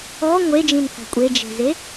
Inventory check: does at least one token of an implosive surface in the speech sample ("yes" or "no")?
no